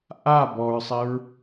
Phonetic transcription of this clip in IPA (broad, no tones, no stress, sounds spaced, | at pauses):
ʔ a b ɔ ɹ sˤ ɪ ɹ